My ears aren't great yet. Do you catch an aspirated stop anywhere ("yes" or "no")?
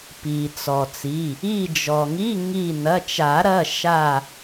no